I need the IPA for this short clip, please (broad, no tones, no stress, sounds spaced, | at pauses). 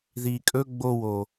ð iː kʼ ɵ ɡ͡b o w o